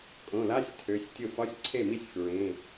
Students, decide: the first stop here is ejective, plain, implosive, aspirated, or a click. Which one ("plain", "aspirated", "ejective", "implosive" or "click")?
ejective